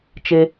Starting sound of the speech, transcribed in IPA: t͡ʃ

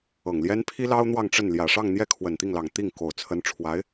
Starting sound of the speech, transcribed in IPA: ɤ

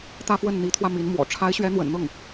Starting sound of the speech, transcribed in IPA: t̪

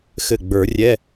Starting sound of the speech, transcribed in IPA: x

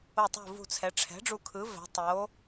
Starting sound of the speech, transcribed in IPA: o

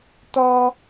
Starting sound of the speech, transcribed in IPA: t̪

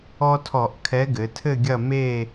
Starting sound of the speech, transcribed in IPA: ɔ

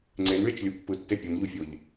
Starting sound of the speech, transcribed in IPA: ŋ͡ǀ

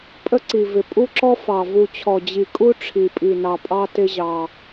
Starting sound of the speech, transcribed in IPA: pʼ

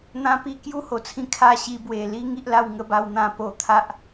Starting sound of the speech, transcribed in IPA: n̪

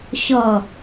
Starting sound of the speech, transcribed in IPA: ɕ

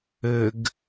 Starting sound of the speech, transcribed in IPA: ɘ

